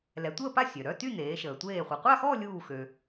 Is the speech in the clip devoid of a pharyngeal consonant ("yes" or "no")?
yes